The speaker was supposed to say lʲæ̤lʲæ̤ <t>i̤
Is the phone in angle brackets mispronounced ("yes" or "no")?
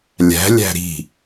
yes